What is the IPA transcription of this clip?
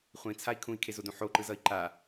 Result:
χʷ ĩ t͡sʰ a i̯ kʰ ũ i̯ kʰ e z o d ũ ħ o ǃ ɯ z ʌ i̯ ǃ a

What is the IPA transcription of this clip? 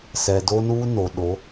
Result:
s ɛ˨ d o˦ n uː˦ n o˨ ɗ o˨˦

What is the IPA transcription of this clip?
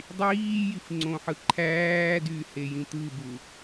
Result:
dˤ iː j i f ŋ͡ǀ õ ħ ɯ ǃʰ æː d y h e j ĩ t̪ ɯ b u

